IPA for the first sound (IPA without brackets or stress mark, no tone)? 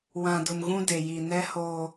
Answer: w